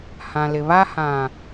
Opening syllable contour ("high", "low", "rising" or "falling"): low